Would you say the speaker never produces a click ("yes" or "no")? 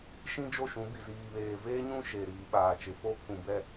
yes